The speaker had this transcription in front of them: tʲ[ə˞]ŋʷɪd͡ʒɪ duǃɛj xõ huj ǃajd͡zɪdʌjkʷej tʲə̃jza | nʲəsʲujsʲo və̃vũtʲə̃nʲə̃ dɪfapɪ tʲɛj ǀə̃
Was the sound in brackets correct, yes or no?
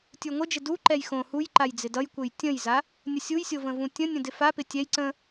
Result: yes